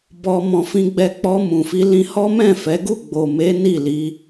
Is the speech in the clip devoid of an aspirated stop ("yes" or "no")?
yes